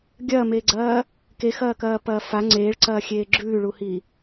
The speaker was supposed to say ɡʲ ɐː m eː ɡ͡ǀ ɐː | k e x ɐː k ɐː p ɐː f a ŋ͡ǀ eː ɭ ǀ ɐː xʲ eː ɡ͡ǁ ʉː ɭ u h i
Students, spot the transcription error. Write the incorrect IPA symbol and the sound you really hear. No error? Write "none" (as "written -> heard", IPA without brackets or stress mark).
none